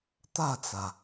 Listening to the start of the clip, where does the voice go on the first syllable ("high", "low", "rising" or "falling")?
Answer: falling